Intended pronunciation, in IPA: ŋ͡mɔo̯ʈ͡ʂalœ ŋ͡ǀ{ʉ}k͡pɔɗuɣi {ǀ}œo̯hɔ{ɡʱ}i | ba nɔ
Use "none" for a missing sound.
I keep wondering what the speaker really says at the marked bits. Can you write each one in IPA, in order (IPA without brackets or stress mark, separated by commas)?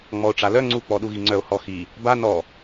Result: u, ŋ͡ǀ, x